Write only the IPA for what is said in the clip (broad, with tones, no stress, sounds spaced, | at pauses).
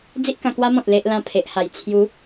d͡z i˦ ʔ k ã˧ k w a˦ m ɔ̃˨ t̚ l e˦ ʔ l ã˥˧ pʰ e˨ ʔ h a˨˩ j t͡sʰ j u˨˦